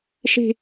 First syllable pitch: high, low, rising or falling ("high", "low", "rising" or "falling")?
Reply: high